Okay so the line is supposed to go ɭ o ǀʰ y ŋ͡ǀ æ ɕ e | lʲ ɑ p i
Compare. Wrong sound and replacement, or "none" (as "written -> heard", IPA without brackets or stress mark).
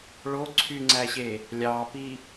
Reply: none